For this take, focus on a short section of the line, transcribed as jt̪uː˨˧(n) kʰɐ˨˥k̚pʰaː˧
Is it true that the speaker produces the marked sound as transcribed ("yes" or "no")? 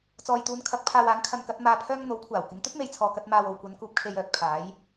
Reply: yes